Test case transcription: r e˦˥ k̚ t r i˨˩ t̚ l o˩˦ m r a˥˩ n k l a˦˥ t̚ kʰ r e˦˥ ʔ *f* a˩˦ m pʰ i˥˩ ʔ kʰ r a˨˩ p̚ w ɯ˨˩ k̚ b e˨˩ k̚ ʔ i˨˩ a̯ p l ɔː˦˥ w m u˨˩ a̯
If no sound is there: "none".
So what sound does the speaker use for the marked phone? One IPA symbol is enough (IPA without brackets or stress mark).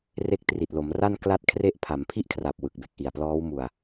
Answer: pʰ